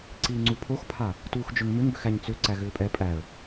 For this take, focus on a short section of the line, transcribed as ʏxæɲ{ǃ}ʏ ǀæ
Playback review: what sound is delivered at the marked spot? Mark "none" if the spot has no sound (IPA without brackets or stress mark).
t͡s